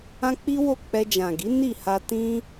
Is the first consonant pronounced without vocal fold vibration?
yes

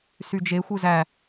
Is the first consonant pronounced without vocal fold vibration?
yes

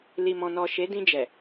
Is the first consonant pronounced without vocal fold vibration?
no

